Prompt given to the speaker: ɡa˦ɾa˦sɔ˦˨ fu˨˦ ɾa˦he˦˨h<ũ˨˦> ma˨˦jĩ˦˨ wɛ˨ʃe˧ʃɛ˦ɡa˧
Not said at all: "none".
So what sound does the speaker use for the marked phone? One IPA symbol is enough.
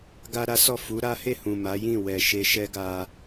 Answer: ũ˨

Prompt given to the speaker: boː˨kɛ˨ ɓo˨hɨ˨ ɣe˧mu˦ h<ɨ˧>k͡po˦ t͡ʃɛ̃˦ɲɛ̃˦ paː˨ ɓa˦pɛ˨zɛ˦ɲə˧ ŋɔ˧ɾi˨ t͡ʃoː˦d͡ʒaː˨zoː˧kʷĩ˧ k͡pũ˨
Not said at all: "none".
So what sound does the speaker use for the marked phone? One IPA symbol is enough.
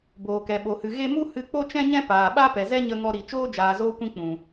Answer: ɨ˧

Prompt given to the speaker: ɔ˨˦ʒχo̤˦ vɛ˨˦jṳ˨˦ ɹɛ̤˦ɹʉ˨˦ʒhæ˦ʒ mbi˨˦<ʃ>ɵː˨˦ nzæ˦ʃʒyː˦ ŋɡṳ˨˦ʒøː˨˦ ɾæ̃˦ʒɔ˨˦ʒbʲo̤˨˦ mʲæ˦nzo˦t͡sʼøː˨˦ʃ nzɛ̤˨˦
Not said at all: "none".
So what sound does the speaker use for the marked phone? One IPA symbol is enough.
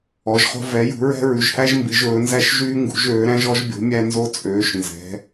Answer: ʒ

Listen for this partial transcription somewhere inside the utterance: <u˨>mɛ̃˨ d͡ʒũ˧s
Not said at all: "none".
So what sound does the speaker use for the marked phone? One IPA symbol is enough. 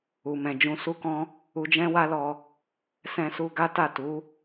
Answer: u˨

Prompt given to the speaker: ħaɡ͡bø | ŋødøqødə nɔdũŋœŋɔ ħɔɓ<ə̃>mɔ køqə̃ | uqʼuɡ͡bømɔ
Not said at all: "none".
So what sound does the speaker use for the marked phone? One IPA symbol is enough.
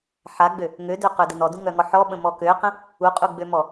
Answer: ə̃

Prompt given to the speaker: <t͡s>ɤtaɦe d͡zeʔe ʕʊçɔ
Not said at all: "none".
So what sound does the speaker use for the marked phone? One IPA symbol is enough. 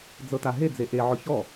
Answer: d͡z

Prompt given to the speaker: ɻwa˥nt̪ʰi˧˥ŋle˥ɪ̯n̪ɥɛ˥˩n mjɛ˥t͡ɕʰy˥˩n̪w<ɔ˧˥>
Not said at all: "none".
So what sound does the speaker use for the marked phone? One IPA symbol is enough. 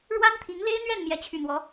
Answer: ɔ˧˥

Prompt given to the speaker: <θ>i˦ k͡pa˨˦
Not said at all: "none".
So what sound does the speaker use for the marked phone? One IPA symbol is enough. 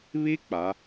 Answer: β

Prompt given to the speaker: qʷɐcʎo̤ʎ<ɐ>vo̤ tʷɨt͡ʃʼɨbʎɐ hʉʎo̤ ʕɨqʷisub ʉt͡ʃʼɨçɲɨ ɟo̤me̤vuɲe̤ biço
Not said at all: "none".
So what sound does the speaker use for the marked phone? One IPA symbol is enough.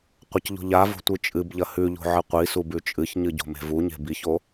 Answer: a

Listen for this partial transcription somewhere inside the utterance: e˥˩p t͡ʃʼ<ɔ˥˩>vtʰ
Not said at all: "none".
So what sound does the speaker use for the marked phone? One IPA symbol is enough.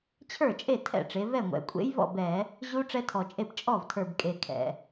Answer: ɔ˥˩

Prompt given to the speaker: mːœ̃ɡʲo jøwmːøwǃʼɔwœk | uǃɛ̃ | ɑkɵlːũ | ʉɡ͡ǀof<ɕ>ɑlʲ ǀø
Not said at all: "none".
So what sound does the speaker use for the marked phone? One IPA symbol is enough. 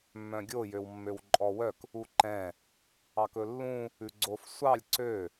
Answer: sʷ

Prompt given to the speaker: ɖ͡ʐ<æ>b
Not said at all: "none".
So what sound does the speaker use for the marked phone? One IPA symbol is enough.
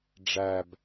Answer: æ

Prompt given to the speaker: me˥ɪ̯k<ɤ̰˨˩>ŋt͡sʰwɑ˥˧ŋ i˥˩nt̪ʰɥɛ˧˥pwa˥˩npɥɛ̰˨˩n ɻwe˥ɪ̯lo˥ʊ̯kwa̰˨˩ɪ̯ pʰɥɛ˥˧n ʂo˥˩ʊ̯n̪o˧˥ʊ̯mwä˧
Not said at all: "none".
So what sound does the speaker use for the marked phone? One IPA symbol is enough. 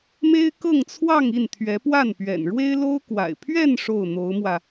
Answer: ɤ˥˧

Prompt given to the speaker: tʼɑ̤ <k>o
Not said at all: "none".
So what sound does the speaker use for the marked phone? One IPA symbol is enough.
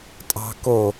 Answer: k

